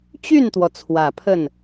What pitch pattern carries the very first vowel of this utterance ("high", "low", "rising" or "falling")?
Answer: falling